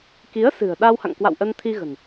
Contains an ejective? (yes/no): no